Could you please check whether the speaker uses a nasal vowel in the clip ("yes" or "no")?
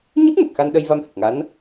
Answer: no